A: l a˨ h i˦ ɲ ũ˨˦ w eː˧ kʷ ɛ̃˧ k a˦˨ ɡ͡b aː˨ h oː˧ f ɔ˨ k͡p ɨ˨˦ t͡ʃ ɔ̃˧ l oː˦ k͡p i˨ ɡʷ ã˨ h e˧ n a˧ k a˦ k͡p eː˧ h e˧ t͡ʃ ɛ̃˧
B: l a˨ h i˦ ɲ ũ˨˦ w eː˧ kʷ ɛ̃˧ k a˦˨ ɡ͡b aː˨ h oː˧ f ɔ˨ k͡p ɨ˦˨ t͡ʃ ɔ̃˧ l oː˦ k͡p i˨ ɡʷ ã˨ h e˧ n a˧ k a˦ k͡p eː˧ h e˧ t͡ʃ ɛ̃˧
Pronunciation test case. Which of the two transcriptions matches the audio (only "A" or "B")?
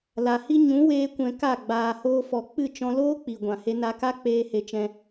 B